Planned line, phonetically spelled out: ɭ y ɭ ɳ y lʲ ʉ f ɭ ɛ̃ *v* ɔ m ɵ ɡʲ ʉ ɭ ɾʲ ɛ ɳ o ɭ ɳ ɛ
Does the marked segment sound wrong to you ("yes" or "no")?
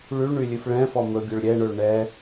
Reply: yes